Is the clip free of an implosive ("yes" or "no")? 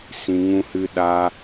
no